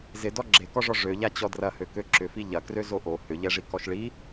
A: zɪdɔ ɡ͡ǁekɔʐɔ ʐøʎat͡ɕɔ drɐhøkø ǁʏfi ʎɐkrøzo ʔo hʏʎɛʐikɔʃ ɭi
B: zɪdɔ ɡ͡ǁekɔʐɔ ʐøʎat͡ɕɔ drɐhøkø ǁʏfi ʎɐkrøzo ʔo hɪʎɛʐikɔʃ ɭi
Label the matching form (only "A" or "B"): A